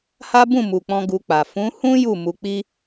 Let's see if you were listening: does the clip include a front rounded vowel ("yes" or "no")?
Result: no